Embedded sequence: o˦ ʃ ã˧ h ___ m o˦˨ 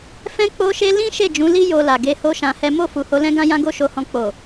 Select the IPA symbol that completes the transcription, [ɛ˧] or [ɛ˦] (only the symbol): ɛ˦